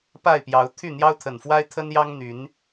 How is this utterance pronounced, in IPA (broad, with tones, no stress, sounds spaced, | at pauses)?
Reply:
p a˥˨ ɪ̯ p j ɑ˨˦ ʊ̯ t̪ʰ y˥˨ n̪ j ɑ˦ ʊ̯ t̪ʰ ə˨˩ n f w a˦ ɪ̯ t̪ʰ ə˦ n j ɑ˦ ŋ n̪ y˨˦ n